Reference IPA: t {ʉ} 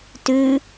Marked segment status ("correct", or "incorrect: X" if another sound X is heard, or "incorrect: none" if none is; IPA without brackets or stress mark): correct